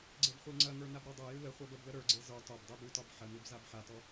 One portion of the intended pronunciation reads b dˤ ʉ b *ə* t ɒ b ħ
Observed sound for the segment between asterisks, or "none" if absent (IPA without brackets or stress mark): ʉ